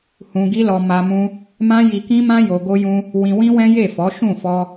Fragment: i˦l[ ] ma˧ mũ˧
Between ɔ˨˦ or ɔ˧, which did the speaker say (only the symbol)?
ɔ˧